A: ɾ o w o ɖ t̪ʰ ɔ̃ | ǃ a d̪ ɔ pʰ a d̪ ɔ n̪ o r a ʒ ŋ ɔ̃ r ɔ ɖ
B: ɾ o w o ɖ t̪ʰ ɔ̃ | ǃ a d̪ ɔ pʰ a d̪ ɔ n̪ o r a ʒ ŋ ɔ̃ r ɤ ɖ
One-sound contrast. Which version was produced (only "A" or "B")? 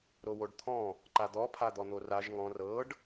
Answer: B